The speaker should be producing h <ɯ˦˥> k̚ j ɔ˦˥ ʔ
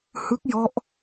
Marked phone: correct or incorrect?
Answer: correct